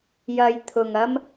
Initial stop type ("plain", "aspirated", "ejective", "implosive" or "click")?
aspirated